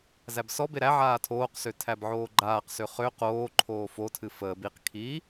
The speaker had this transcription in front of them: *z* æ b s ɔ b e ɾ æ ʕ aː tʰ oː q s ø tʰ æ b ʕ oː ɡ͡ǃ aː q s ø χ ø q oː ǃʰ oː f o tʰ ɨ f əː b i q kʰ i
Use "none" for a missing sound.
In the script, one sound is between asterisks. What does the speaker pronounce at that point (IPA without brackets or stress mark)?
z